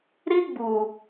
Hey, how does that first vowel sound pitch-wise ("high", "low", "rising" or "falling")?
high